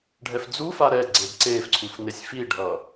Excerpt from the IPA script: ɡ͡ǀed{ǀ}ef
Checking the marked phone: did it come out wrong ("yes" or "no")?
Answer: no